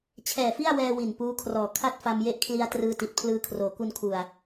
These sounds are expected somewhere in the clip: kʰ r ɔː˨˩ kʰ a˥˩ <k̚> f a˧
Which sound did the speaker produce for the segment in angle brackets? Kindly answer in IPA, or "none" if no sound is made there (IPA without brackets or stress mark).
t̚